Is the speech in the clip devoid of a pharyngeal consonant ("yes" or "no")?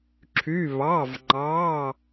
yes